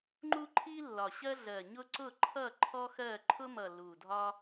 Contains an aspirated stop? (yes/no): yes